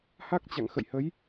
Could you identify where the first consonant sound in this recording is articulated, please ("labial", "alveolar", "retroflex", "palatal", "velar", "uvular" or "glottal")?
glottal